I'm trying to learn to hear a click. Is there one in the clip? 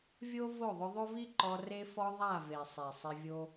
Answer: yes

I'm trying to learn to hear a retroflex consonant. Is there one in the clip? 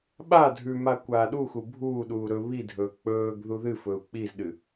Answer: no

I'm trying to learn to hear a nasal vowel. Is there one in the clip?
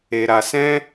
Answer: yes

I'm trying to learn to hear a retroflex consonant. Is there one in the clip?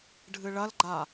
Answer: yes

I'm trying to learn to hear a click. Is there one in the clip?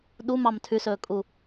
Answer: no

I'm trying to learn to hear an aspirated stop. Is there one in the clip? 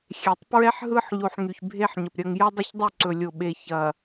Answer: no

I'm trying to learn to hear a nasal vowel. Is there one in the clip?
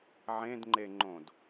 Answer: yes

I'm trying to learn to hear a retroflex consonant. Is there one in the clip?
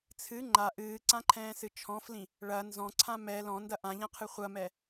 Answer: yes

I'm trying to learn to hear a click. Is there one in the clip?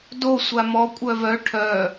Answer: no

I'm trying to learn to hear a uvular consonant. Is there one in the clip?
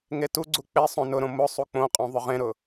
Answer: yes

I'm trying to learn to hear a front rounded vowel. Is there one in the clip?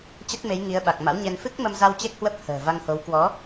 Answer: no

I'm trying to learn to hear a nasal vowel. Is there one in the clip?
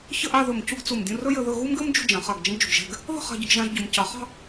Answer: yes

